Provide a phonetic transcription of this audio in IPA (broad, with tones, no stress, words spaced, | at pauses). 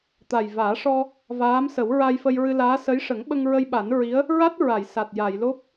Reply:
t̪a˨˩jvaː˨˩˦ʂɔ˧ | vaː˧˥msə˨˩˦wɹa˧jfə˧j ɹɨ˧laː˧˥ sə˧˥jʂə˨˩˦ŋɓə˧ŋ ɹə˧jɓa˨˩˦nɹi˧˥ə̯ | ɹa˦˥t̚ ɹa˨˩˨jsa˨˩t̚ ja˨˩˨jlo˦˥p̚